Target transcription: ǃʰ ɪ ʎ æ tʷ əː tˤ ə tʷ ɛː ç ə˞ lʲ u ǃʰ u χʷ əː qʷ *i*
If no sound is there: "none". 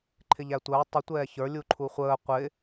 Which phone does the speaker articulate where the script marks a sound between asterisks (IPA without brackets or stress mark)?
ɪ